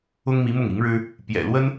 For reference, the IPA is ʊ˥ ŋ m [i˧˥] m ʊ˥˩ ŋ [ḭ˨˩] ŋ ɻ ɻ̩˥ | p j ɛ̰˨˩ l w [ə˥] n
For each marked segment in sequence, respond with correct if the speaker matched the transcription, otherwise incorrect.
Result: correct, incorrect: i˧˥, correct

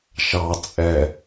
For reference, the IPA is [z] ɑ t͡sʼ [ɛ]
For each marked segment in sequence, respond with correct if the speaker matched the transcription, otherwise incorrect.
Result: incorrect: ʃ, correct

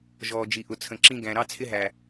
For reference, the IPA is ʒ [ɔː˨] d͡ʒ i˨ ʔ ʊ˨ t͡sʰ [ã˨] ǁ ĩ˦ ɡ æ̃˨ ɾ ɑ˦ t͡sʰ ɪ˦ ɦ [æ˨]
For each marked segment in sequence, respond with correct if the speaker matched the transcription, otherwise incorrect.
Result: correct, incorrect: ə̃˨, correct

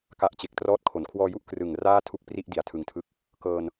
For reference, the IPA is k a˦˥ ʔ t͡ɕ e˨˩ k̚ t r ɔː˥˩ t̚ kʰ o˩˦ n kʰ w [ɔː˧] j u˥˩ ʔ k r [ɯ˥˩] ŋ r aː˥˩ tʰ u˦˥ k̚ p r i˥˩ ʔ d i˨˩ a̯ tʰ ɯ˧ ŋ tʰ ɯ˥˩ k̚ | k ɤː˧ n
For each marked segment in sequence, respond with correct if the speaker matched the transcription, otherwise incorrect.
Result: correct, incorrect: ɯ˨˩

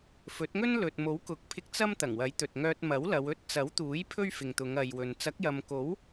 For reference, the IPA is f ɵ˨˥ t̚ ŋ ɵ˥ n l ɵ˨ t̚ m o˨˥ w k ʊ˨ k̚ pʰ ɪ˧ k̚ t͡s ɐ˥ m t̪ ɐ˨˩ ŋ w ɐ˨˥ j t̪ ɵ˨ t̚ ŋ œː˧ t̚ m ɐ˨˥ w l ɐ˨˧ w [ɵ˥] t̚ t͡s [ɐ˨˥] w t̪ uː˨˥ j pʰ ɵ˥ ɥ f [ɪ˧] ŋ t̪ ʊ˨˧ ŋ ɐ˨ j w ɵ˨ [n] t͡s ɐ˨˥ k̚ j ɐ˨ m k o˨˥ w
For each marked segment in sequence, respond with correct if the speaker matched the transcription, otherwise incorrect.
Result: correct, correct, incorrect: ɪ˨, correct

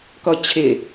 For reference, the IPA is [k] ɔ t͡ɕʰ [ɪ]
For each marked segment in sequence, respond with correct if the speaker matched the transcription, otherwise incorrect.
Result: correct, correct

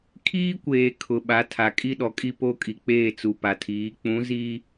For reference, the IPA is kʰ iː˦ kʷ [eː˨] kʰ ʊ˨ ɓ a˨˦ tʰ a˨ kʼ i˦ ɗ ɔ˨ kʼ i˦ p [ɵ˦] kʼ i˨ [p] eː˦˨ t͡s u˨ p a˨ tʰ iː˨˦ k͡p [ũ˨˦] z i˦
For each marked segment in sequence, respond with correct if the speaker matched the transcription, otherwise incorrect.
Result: correct, incorrect: o˦, incorrect: k͡p, correct

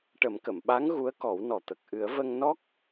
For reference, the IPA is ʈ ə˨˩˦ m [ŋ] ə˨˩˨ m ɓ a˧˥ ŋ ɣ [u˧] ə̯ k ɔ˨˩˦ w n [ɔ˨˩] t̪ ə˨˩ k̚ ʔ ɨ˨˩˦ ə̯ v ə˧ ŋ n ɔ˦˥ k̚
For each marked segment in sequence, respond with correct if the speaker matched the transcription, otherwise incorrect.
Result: incorrect: k, incorrect: u˧˥, correct

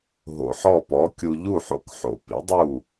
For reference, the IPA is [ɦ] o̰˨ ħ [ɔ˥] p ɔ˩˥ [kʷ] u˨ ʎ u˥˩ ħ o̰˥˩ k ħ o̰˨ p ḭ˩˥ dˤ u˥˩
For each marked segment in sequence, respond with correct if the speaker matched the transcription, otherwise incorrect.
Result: correct, incorrect: ɔ˥˩, incorrect: kʲ

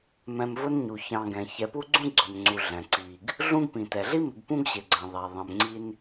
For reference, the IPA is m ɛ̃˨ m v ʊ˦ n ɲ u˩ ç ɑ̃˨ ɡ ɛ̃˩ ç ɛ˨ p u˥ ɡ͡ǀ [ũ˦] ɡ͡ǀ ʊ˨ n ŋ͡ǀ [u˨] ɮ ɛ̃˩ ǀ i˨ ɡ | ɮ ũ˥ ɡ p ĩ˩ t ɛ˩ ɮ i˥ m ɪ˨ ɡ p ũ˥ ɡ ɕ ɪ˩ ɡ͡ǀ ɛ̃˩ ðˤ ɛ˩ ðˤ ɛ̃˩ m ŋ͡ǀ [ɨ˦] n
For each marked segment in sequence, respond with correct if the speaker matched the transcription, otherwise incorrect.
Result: incorrect: ũ˥, correct, incorrect: i˦

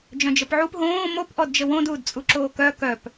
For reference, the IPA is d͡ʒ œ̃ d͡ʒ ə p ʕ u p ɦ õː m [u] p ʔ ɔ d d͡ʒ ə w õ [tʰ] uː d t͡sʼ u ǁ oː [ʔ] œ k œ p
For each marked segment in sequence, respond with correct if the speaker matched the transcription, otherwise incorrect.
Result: incorrect: o, incorrect: d, incorrect: k

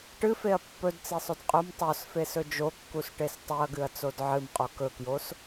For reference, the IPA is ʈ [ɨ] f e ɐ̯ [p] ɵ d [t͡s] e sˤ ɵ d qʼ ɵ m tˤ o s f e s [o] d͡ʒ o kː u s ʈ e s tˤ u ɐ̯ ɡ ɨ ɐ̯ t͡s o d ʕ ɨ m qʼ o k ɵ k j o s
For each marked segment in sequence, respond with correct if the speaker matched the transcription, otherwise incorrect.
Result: correct, incorrect: pː, correct, incorrect: ɵ

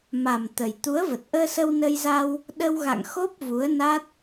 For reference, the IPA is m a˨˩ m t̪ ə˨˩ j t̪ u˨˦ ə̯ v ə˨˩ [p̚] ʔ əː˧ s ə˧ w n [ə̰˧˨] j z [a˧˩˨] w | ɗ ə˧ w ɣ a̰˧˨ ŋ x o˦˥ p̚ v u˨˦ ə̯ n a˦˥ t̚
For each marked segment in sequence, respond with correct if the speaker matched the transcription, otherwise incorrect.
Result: incorrect: t̚, incorrect: ə˧, incorrect: a˧

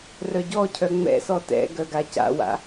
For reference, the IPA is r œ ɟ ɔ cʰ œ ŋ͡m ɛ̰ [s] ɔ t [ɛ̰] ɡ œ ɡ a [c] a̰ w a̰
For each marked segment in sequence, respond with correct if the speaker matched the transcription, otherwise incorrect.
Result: correct, correct, correct

